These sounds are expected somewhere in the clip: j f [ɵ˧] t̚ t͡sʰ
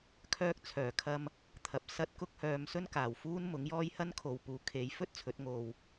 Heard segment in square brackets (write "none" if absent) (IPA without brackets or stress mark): ɵ˥